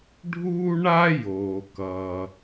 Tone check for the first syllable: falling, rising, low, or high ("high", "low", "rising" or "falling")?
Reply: high